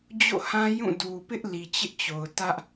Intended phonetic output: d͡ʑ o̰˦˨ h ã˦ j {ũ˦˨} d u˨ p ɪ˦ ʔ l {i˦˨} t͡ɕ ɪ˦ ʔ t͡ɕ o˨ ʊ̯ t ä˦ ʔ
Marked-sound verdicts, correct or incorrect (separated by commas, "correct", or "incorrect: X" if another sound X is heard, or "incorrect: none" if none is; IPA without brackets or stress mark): correct, incorrect: i˨